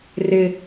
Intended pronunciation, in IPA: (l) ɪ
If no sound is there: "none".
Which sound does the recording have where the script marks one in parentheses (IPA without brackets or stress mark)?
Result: r